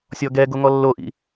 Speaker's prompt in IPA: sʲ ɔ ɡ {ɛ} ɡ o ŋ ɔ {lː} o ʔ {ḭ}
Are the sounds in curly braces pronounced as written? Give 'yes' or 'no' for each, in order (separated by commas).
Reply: yes, yes, yes